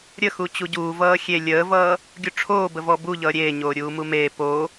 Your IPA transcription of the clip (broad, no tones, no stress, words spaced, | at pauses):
ɾʲə xut͡ɕuɟuː vʌːxʲe lʲəːvʌː | ɡʲuʈ͡ʂʰoːbəvɔ buʎʌː ɾʲeːɲoː ɾʲuːmumeː po